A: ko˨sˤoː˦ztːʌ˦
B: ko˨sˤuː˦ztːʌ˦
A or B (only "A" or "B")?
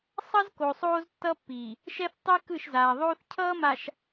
A